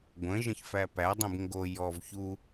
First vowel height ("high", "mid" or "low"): mid